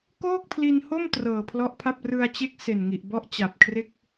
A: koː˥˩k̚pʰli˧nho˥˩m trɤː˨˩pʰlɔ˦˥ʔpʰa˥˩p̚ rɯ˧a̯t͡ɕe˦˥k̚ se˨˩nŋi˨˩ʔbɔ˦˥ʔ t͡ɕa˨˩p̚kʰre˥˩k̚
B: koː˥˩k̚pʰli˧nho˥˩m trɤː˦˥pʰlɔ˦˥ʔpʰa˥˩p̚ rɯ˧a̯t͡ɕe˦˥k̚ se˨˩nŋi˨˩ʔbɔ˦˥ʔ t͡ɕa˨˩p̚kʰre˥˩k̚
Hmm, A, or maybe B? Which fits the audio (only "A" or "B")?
A